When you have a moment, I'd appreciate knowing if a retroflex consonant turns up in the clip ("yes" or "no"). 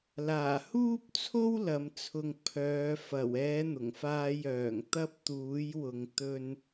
no